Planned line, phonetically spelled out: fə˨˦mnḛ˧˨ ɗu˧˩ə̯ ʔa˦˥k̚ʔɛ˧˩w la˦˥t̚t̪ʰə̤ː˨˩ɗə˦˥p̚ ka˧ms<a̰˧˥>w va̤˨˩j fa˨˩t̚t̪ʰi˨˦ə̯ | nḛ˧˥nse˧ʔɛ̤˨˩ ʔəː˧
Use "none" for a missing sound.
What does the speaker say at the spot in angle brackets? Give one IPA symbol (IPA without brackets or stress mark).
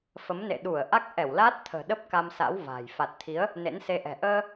a̰˧˥